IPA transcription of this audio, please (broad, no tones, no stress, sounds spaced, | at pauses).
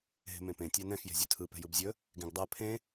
ɦ e̤ m ẽ p ẽ tʲ ɛ n ɛ̃ x j e̤ zʲ ɵ tʰ ɯ p ɛ̤ j ɯ b zʲ ɵ | ɡ ẽ ɡ dˤ ɜ pʰ ẽ